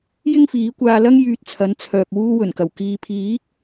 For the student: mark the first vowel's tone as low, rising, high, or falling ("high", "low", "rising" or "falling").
high